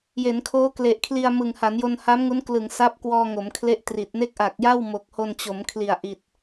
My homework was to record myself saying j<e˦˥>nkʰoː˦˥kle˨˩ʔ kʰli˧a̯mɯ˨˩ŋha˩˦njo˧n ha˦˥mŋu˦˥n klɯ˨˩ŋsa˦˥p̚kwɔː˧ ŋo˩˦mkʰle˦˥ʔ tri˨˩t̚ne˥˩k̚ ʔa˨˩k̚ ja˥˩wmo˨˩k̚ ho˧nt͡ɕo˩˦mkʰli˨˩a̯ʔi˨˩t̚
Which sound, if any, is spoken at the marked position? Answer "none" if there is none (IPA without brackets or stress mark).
e˩˦